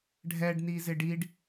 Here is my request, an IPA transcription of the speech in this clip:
ɖʱɛɖnizɪ ɖiɖ

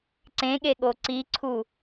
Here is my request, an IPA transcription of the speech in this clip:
ǀẽɠeɠo ǀiǀʰu

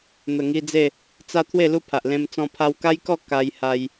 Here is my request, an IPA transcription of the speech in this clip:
n̪ə˨˩ŋi˧d͡ze˥˧ | t͡sa˧ t̪ʰwe˥˧lu˥˧pʰa˨ʔlẽ˧m t͡sɔ̃˧pʰa˧wka˦jkɔ˥˧ ka˧j ha˧j

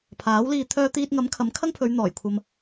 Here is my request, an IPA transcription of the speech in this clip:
pʰaː˨˥wliː˧ t̪ʰœː˧t̪iː˧t̚ŋɐ˨˥m kʰɐ˨˥mkʰɐ˥ŋpʰɵ˨˧ɥn̪ɔː˨˩j kʷʰɐ˧m

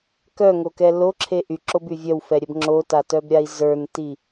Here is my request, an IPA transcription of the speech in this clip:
kœŋokɛ loǁʰe ʔyǁoby vʲœwfɛɾʲɛb ŋ͡ǁotatœbɾʲai̯ zə˞nti

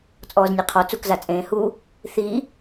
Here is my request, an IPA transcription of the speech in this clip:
t͡sʼɔːznʲeqʰɔ t͡sukza t͡sʼẽːhu | θi

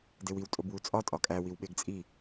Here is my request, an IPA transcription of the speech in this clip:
dewiw tʼobwut͡sʼɒ tʼɒkʼæ wiwɓeɡt͡sʼi

